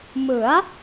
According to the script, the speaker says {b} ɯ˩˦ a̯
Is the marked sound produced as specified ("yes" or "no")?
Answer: no